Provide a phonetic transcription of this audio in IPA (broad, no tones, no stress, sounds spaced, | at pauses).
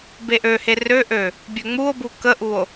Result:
b e ʔ ø h e r ø ʔ ø | bʲ ø ŋ͡m u o̯ b u k ə ʔ u o̯